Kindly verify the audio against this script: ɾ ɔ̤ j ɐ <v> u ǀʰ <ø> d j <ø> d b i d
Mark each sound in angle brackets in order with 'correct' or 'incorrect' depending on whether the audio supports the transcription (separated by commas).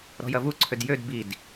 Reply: correct, correct, correct